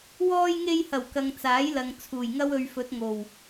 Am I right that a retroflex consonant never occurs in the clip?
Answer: yes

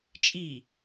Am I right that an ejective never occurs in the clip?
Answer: no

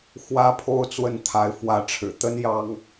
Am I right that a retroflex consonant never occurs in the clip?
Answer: no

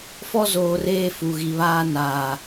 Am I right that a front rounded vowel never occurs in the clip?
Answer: yes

